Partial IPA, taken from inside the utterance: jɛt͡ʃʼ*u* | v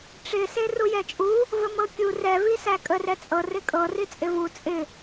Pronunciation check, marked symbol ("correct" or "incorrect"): correct